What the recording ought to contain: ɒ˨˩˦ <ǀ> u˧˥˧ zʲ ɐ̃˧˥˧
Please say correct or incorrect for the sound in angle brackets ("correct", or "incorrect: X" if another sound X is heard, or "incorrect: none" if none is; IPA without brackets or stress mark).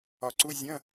correct